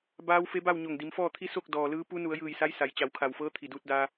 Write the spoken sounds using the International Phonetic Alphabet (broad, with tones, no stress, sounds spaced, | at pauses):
b aː˧˥ w f e˧˥ b a˥˨ w ɲ o˧˩ ŋ d i˩˧ m f ɔː˥˨ t̪ʰ i˧˥ s o˥˨ k̚ d ɔː˩ l ɯː˧˥ p u˧˥ n u˩˧ ə̯ j ɯː˧˩ j s a˧˥ j s a˩˧ j t͡ɕ a˩˧ w kʰ a˩ w f ɤː˧˥ t̪ʰ i˩ d uː˧ t̚ d aː˧